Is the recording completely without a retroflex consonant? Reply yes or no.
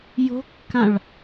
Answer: no